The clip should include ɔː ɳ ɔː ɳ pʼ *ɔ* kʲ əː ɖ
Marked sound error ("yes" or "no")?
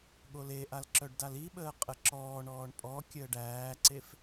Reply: no